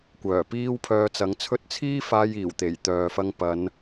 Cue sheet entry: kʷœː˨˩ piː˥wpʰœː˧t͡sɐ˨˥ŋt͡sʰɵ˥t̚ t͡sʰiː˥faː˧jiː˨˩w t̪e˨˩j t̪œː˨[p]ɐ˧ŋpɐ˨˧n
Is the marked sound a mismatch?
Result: yes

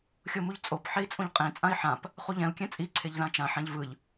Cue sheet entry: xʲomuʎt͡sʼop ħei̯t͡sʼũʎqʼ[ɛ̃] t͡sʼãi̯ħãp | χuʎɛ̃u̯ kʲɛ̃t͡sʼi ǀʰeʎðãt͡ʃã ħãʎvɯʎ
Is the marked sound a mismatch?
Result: yes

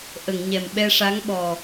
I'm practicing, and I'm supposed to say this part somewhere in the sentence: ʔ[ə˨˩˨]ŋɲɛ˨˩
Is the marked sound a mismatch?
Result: no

